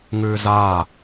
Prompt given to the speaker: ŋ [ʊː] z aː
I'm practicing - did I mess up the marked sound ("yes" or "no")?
yes